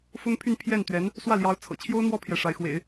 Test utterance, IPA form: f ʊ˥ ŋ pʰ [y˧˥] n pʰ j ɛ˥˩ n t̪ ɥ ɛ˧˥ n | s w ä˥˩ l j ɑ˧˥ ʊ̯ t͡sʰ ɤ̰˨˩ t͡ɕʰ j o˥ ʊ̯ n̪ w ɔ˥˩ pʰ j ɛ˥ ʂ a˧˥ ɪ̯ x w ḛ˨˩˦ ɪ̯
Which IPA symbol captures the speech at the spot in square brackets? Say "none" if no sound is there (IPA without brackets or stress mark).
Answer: y˥˧